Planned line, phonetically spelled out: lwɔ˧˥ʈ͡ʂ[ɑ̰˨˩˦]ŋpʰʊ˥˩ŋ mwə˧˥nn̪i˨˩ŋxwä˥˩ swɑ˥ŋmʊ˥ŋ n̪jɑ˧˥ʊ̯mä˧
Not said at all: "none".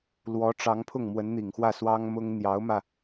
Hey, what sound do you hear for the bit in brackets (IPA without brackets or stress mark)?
ɑ˧˥